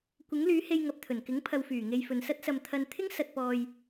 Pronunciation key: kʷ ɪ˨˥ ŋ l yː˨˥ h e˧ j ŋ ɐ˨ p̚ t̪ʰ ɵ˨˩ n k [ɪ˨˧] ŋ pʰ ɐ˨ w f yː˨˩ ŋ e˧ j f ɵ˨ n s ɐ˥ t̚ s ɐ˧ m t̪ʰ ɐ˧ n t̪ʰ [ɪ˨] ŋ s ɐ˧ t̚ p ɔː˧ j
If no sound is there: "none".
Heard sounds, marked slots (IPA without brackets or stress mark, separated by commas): ɪ˨˥, ɪ˥